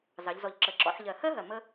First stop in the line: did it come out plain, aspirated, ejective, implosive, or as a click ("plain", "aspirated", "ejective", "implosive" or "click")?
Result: click